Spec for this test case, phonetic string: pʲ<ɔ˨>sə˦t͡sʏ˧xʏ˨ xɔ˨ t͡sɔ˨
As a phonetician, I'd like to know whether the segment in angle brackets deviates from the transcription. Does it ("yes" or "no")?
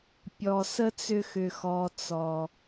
no